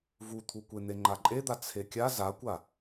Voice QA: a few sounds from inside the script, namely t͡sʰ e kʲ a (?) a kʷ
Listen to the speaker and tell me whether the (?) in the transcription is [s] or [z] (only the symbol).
z